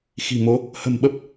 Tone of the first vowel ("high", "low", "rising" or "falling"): low